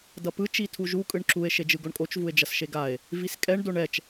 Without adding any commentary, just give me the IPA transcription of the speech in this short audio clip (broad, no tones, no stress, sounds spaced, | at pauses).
d ʌ p ɯ t͡ʃ i tʰ u ʒ u kʼ ɯ ɳ ǁ u e̯ ʃ e d͡ʒ ɯ ɡ o ɳ kʼ o t͡ʃ v u e̯ d͡ʒ ʌ s ʃ e ɡ a e̯ | v i s kʼ ɛ ɳ d o ɳ ɛ t͡ʃ